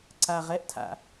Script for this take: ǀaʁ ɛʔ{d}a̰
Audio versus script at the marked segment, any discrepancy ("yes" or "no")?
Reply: yes